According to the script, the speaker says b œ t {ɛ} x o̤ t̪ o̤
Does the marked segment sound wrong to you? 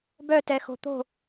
no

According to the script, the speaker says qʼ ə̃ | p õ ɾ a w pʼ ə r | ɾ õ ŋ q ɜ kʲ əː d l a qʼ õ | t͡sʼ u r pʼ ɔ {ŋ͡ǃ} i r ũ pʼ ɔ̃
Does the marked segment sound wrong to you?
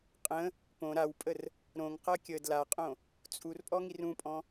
yes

